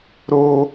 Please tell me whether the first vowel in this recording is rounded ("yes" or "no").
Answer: yes